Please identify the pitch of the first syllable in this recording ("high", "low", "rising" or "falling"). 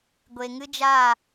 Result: low